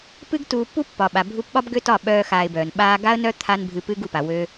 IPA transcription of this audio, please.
pɨ˦ɡ tuː˧pːu˦ pːɒ˨ɓa˨ bʱu˧pɓɒ˦b ɡø˦tɒ˦˨ ɓœː˦xaː˧ɪ̯bœː˨n ɓaː˧ɡa˦ə̯nœ˦ t̪ʰa˦nbʱɨ˧pɨ˦ɡ u˨pa˨ wø˧

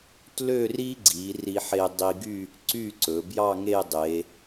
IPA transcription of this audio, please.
tlø˥˧ri˥ɡ͡ǀi˩˧ ri˧ħe˧ dˤi˧ɡy˥˧ | ǀy˥˧ǀɵ˩˧ bjɑ˥˧ ŋe˥˧dˤe˩˧

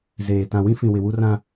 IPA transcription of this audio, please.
zeː˨ tã˨wĩ˦fĩ˨ wɪ˨wu˦rã˦

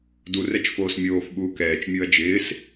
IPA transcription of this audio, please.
du rɛt͡ʃfoːsmʲoːf ɓuːkɛːt͡ʃ mʲuɐ̯d͡ʒɪːs

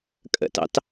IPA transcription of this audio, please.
kʼə̰tɑ̰t

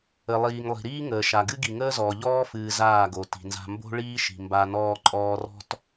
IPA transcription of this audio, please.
ə˨lˠiː˨ŋlˠi̤˨ ɾiː˦ŋəː˨ʃa˨ ɡɨ˦ɡi˨ŋəː˦zɔː˨ ʎɔː˦fɨː˨ zaː˦˨ɡo˨ti̤˨nza̤˦ mbo̤˦ ɭiː˦ʃi̤˨ mba˦nɔː˦ ǃʼɔː˦rɔ̤˦t

